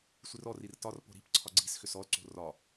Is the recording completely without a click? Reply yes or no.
no